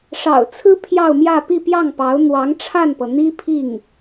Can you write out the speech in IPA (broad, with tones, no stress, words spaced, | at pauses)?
ʂɑ̰˨˩ʊ̯t͡sʰɹ̩˥ pʰjɑ˥˧ʊ̯mjä˥˧ pi˥˧pjɑ˥˩ŋpɑ˧˥ʊ̯ n̪wɑ˧˥ŋʈ͡ʂʰa˥˩npɤ˩ n̪i˥pʰi˥˩ŋ